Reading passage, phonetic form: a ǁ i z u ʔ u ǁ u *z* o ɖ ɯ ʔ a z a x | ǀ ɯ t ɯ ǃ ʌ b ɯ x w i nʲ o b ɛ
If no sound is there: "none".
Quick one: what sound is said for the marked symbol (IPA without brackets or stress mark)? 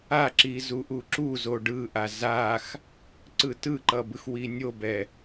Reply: z